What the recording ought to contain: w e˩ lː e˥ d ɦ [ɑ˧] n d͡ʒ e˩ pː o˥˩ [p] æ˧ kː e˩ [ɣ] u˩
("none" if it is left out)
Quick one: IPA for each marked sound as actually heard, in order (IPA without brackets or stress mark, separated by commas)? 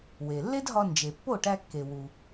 ɒ˧, ʈ, w